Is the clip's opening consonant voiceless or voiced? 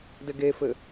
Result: voiced